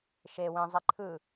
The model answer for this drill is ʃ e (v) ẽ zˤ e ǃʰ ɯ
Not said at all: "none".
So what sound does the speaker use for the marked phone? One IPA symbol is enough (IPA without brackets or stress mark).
w